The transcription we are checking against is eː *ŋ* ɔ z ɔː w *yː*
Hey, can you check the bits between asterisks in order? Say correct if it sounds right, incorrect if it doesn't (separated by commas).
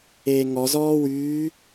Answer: correct, correct